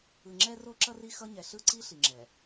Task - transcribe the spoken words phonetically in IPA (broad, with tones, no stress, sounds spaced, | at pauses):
ɯ˨ ŋ͡ǁ ɛ˦ r o˦ ǁ ʌ˦ r i˦ x ʌ˦ ɲ ɛ˨ ɬ ɯ˦ ǀ i˦ ɬ i˨ ŋ͡ǁ ɛ˨